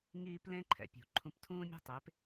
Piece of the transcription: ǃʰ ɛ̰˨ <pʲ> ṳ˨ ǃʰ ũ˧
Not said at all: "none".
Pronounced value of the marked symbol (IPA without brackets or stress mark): pʲ